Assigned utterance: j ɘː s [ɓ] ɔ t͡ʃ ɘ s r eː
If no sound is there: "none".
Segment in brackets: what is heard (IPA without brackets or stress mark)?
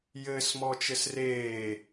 m